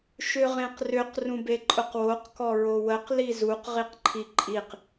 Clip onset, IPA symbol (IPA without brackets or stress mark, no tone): ʃ